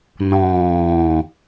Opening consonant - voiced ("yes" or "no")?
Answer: yes